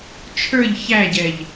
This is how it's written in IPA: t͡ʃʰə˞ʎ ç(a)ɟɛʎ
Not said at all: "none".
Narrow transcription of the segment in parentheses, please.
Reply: æ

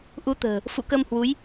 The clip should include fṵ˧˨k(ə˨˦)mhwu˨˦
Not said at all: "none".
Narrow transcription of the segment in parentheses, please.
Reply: ə˧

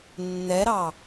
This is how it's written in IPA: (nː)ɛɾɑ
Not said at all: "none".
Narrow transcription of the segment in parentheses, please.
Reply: nː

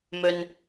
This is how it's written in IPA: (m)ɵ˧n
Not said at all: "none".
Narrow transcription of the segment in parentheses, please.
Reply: m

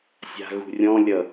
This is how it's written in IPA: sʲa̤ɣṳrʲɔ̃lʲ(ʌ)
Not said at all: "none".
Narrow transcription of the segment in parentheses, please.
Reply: ʌ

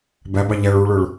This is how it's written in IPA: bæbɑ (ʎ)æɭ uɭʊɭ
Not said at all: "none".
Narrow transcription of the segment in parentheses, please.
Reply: ʎ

